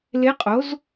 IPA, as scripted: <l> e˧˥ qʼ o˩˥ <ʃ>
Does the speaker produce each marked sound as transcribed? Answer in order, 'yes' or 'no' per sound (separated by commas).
yes, no